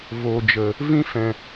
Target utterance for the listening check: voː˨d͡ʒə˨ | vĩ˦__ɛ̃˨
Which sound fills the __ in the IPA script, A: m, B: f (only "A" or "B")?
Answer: B